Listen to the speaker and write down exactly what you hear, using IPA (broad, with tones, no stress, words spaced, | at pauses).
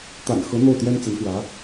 t̪a̰˨˩nxɤ˧˥ n̪o˥˩ʊ̯t̪jɛ˥nt͡sə˧˥nxwä˧˥